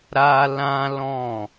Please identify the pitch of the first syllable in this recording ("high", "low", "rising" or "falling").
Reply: high